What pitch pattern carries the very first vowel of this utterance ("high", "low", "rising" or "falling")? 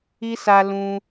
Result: high